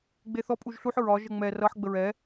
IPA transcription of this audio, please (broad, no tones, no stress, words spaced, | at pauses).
ɡ͡beθɔ pʼuʒɬuħ ɹɒ ʒəŋ͡mɛ rʌħ ɡ͡bəɹɛ